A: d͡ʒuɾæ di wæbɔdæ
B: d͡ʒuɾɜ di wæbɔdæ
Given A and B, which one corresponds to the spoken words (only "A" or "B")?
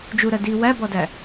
B